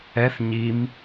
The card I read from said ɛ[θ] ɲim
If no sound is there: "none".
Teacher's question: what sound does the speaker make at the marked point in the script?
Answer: θ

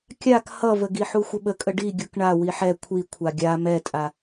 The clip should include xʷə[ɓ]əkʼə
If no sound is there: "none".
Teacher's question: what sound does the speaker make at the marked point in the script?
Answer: ɓ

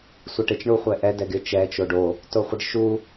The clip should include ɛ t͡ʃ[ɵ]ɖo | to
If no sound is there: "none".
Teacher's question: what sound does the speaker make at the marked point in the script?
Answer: o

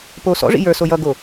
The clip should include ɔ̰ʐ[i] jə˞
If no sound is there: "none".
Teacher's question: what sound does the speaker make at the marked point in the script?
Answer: ḭ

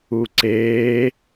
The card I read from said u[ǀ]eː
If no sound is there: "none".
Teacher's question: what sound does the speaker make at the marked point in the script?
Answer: ǀ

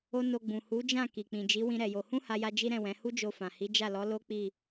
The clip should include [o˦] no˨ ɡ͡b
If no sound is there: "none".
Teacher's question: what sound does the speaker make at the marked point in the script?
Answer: o˧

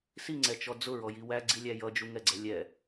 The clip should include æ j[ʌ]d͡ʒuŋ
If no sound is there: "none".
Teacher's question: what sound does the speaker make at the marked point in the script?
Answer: ʌ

